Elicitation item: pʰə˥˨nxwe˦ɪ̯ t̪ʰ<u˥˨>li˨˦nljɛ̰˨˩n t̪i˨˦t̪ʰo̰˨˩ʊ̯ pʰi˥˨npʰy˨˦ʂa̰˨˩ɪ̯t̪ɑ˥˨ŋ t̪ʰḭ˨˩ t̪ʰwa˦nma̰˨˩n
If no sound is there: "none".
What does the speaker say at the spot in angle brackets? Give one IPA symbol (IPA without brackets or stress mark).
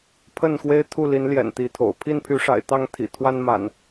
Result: u˥˨